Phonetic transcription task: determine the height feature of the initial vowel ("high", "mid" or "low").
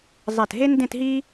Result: mid